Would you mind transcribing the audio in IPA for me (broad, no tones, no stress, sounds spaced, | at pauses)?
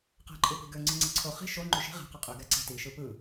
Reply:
q æ̤ ǃʼ ɯ p i̤ ɡ ø ŋ͡ǀ ɯ ŋ͡ǀ i ǀʰ o χ i̤ ʃ o ŋ͡ǃ y ʃ i̤ ʁ æ̤ q ɯ qʼ y ɡ æ ǀ æ̤ t i ʃ ɯ p ɯ